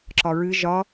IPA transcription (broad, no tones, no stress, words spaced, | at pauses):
ǁɒɹɨ ʒɒ